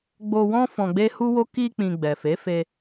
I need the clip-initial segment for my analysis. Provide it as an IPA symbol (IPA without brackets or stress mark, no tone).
ɡ͡b